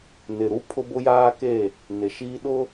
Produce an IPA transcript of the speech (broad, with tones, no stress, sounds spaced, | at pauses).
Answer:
n ɪ˨ ɾ u˦ pʰ ʊ˦ b ʊ˦ j aː˦ k e˦˨ | n ɪ˨ ʃ iː˦ ɗ ʊ˦